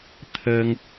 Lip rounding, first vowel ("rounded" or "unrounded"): unrounded